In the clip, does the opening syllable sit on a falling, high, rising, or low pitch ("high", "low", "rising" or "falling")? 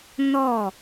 falling